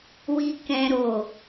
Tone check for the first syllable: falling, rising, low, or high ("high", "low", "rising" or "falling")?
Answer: high